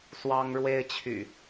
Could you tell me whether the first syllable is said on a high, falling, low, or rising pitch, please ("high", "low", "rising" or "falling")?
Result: high